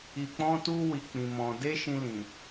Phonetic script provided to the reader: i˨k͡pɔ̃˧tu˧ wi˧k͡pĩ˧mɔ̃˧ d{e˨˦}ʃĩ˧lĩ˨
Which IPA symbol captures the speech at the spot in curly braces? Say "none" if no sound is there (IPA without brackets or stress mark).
e˦